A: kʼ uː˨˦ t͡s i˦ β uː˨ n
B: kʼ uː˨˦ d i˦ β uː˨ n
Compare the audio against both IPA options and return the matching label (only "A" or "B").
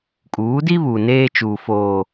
B